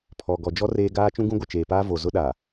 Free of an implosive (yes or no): no